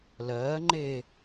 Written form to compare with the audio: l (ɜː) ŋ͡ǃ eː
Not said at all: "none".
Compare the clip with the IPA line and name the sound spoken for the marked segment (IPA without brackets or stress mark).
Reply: ɜː